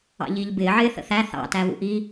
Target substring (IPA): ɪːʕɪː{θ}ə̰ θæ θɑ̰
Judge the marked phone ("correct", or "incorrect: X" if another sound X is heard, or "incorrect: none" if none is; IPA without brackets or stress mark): correct